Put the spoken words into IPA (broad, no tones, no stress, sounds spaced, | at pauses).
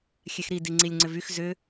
xʲ ɛ x ɾ i d i ŋ͡ǀ i lʲ ŋ͡ǀ ʏ v y x z ʏ